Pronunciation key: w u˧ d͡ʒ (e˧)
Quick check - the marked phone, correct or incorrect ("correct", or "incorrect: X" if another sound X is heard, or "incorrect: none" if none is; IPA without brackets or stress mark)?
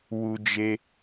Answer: correct